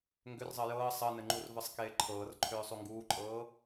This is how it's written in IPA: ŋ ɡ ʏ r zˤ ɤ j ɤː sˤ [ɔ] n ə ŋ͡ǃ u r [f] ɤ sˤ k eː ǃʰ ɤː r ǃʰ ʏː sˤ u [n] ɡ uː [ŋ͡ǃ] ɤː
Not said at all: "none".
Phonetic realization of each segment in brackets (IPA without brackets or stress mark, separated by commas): ɤ, v, ŋ, ǃʼ